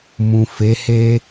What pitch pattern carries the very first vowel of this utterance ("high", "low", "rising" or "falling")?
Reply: low